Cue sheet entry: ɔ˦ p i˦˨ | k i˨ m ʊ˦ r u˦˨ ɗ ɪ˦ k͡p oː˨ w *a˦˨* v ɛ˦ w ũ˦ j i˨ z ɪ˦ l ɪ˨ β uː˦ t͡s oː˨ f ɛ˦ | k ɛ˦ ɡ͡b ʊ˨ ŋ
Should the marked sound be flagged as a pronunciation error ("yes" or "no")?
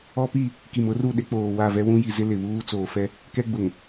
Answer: no